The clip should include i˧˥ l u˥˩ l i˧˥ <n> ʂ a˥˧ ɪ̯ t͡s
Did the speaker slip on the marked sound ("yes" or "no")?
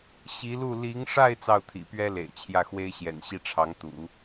yes